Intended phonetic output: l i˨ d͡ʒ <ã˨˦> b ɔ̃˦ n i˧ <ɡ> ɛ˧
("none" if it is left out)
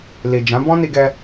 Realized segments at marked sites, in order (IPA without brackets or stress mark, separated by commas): ã˨˦, ɡ